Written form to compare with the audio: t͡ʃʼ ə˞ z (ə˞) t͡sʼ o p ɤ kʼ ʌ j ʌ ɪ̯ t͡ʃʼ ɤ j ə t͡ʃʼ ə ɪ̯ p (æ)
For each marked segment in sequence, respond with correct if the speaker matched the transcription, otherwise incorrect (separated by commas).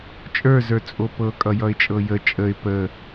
correct, incorrect